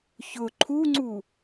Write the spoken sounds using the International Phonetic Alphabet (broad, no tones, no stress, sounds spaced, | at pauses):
ç ʊ ǃʰ u ŋ͡ǀ u